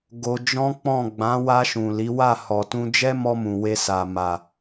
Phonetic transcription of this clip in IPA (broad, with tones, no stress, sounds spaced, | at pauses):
ɡ o˧ d͡ʒ ɔ̃˦ k͡p ɔ̃˦˨ ɡ͡b ã˨˦ w a˧ ʃ ũ˨ l i˨˦ w a˦˨ h ɔ˨ t ũ˧ d͡ʒ ɛ˦ m ɔ˧ m ũ˨ w e˧ s a˨ m a˨